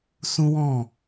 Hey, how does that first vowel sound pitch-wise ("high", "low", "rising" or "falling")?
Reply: high